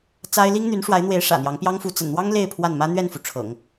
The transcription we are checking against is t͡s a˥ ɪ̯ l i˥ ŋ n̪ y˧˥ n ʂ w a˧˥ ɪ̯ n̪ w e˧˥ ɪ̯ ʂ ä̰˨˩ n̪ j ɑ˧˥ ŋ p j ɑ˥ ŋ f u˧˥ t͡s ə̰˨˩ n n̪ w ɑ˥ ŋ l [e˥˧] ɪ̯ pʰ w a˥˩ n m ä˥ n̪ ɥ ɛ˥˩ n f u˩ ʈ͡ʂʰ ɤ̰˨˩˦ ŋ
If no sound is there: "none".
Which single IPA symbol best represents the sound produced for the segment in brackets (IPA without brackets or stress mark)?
e˥˧